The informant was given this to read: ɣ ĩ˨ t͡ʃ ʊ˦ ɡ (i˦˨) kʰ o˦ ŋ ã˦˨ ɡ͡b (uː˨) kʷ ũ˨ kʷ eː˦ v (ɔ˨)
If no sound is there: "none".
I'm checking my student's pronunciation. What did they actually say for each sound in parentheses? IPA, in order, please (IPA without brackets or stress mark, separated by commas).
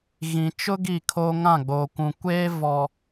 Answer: i˦˨, oː˨, ɔ˨